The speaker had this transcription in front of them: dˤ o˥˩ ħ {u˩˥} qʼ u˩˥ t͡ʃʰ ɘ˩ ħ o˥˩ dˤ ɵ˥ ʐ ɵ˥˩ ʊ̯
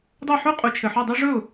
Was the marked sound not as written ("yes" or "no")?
yes